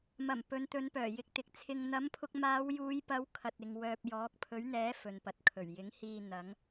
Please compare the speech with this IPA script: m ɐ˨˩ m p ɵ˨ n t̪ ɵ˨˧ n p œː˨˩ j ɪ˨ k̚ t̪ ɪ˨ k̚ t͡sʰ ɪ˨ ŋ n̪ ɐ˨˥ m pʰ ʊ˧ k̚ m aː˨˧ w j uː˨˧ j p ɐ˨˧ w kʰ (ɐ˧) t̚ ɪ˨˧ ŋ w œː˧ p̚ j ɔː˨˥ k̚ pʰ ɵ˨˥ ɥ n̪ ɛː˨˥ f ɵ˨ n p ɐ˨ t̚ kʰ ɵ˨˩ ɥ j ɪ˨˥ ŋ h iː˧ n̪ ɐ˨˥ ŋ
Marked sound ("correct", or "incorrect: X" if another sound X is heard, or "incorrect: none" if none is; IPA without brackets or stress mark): correct